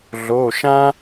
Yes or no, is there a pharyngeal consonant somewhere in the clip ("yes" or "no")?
no